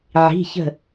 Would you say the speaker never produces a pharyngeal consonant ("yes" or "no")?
no